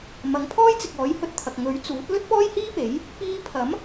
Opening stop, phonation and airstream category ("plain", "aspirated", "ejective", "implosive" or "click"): aspirated